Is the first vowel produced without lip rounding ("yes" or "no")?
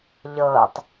yes